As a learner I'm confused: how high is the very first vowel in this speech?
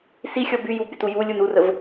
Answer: high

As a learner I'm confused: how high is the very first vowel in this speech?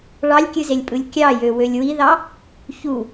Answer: low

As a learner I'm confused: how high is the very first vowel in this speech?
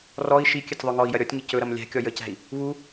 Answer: mid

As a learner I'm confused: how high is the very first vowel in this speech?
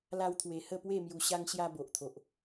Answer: low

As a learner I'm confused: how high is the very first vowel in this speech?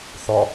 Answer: low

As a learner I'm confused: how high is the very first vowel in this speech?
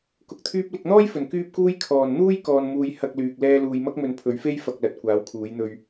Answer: high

